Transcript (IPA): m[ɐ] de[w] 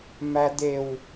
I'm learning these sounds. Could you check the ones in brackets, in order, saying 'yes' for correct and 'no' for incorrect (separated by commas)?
no, yes